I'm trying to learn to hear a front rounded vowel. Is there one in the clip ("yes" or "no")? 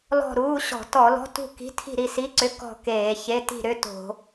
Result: yes